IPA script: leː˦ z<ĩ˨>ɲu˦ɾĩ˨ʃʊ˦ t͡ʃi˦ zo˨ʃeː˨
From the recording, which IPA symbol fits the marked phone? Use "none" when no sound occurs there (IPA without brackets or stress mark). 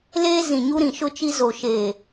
ĩ˨